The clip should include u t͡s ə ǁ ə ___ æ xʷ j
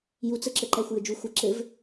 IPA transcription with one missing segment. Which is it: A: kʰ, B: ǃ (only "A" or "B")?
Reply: B